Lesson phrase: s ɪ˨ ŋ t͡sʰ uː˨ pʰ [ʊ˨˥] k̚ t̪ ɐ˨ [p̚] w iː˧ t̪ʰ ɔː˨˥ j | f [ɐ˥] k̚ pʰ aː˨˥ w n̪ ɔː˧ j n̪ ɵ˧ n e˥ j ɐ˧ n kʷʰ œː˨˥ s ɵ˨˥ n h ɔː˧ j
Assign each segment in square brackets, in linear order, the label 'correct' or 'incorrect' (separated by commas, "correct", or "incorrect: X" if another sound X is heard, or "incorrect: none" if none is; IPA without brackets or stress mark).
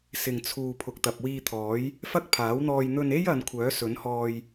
incorrect: ʊ˨, correct, correct